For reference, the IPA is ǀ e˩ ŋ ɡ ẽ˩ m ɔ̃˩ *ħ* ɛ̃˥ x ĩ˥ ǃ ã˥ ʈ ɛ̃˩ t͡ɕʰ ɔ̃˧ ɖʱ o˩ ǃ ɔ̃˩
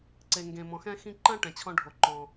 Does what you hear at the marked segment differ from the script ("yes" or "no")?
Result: yes